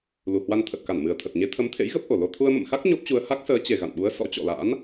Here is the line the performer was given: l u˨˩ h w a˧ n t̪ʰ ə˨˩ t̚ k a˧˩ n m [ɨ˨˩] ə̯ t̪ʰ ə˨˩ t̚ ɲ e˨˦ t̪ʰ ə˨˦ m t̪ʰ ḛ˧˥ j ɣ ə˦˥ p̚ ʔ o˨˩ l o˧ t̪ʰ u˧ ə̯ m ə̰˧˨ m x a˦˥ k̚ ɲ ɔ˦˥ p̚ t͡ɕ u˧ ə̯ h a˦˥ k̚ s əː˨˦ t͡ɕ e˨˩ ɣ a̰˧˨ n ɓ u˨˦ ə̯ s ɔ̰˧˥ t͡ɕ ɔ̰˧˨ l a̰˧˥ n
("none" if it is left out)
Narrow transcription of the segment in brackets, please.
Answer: ɨ˨˩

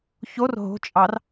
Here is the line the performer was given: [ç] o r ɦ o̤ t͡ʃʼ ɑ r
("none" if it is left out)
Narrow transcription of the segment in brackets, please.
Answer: ç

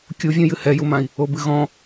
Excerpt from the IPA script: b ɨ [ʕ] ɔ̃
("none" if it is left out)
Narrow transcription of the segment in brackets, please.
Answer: ɣ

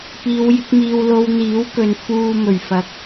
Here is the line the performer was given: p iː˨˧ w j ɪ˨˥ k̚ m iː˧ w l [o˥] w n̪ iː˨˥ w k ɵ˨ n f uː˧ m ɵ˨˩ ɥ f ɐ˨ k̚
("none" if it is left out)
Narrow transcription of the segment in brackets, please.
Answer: o˧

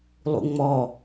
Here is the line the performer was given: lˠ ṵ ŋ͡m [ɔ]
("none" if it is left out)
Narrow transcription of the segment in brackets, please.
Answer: ɔ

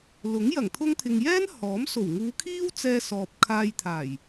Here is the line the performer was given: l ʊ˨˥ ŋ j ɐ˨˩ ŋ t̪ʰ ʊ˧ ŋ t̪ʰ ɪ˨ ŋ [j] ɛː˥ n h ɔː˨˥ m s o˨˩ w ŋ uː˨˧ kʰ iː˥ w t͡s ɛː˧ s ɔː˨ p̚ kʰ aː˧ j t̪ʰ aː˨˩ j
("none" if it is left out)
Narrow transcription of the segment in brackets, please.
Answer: j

